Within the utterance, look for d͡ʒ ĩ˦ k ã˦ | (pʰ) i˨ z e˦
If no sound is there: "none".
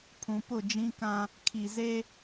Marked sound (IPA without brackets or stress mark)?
kʰ